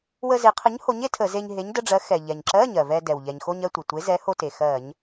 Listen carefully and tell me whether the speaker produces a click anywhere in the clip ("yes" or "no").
yes